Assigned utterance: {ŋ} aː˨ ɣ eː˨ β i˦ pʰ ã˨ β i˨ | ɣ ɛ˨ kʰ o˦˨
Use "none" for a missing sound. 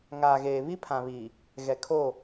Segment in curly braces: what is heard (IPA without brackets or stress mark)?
ŋ